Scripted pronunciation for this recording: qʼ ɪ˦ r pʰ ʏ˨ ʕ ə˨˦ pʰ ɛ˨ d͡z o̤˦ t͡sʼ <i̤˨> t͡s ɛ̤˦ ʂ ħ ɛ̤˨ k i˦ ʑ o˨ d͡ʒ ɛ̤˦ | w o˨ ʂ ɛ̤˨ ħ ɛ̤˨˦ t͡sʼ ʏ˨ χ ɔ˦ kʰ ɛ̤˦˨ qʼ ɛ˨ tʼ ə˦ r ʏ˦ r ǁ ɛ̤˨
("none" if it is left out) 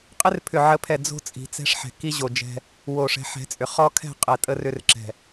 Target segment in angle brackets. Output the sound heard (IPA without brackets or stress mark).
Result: i̤˨